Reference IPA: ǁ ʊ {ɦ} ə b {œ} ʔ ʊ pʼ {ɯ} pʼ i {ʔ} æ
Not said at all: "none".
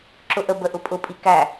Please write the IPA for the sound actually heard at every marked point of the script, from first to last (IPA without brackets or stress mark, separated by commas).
ʔ, ə, ʊ, k